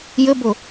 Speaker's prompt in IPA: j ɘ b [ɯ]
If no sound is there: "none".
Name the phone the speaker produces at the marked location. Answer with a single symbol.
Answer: ʊ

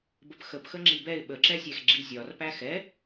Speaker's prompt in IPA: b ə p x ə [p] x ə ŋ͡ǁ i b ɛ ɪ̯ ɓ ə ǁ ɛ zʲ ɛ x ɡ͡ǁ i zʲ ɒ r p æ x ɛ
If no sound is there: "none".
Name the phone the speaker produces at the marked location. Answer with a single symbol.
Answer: p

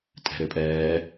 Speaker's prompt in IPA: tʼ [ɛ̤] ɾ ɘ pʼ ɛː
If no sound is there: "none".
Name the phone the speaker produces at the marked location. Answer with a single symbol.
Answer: ɛ̤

